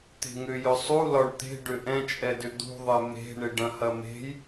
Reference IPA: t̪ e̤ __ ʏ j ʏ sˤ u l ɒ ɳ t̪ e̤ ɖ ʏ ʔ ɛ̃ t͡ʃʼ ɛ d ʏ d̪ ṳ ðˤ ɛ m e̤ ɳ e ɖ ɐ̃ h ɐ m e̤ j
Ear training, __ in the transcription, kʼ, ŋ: ŋ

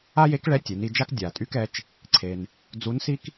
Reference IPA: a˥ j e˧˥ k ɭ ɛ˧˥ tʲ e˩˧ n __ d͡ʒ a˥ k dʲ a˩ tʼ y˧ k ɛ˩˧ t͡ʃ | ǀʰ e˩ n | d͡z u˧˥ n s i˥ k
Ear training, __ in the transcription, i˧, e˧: i˧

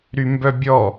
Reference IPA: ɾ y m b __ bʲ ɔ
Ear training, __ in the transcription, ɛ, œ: œ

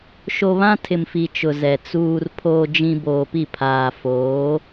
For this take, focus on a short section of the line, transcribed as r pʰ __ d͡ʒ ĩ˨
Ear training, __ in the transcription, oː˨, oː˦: oː˨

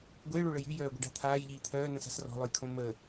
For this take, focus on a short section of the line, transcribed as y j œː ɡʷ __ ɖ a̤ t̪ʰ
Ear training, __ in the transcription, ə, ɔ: ə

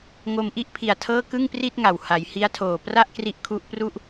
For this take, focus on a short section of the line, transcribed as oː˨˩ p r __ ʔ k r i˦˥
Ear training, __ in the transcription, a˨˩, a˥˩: a˥˩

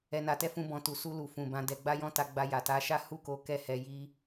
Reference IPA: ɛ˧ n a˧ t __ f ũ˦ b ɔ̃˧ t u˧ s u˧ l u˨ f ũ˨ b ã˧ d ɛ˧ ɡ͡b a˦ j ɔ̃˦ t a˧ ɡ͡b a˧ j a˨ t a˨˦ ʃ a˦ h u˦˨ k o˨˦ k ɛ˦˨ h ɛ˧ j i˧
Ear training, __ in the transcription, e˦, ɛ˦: ɛ˦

